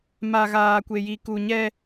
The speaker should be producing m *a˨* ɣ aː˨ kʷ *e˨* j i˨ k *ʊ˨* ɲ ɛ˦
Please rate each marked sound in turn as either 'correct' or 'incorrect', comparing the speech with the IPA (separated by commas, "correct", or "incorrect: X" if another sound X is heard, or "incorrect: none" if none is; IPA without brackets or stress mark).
correct, correct, incorrect: u˨